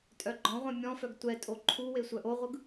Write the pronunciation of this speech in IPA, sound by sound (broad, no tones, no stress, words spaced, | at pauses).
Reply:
tʼœɡ͡ǃɔ̃ʁʷœ̃ mʲɔ̃fœɡ tʷɛtʼo ǃʰuwe sʷœʔoʁʷɯɡ